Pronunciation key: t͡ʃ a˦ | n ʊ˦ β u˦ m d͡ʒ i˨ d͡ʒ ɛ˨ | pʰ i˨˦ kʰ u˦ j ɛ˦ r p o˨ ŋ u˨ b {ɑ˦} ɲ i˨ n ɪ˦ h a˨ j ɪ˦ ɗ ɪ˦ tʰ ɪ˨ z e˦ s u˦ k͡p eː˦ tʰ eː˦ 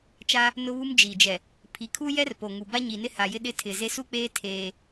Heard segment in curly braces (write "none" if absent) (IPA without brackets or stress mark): a˦